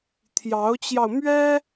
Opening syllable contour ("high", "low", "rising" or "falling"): rising